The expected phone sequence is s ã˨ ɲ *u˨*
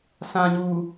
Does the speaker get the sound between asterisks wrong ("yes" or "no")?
no